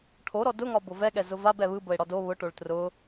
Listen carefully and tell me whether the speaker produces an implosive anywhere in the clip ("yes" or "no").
yes